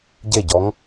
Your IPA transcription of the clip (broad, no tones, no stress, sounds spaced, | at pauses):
ɟ e ɟ ɔ ŋ